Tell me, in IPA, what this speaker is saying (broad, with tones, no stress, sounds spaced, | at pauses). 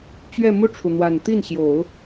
t͡ɕ ɥ ɛ˥˧ m u˥˩ ʈ͡ʂʰ u˩ n̪ w a˨˩ n t̪ i˥˩ n ɕ j o˨˩˦ ʊ̯